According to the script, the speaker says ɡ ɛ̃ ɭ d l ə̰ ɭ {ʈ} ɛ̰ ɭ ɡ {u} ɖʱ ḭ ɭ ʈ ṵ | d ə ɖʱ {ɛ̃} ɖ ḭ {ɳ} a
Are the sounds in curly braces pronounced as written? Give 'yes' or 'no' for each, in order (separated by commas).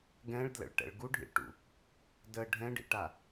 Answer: yes, yes, yes, no